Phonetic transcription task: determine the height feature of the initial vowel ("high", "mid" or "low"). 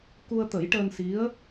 high